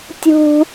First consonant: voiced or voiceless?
voiceless